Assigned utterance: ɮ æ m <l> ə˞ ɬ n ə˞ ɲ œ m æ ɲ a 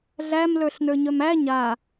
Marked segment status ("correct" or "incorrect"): correct